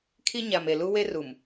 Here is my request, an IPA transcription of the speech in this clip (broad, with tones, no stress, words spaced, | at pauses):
kʰi˦ ɲa˨m e˨lu˦we˦ru˨m